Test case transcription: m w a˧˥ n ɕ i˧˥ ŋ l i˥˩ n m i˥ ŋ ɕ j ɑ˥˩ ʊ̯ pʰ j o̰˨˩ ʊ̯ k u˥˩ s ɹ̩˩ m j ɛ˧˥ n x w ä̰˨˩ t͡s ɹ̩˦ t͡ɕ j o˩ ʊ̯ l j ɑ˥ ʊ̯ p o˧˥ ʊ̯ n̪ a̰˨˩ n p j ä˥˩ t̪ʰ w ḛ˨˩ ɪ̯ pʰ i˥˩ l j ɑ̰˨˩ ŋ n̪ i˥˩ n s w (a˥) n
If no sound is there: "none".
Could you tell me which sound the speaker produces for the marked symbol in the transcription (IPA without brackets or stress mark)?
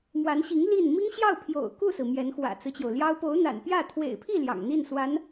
a˧˥